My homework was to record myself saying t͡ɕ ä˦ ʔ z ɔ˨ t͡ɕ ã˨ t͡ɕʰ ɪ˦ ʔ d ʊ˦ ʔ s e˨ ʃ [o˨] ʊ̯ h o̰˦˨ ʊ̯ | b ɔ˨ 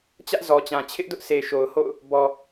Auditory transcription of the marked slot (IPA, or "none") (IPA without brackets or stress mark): o˨